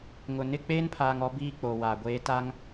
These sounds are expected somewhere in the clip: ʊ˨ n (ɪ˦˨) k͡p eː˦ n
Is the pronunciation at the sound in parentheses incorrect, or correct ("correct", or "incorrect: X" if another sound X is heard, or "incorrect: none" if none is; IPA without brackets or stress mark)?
correct